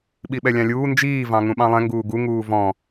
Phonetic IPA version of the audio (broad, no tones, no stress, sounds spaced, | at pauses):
ɓ i ɓ ɛ lʲ ɑ̃ lʲ uː n d͡ʒ iː v ɑ̃ ŋ ũ ɓ ɑ̃ lˠ ɛ̃ ŋ ɡ uː ɡ u ŋ uː v ɔ̃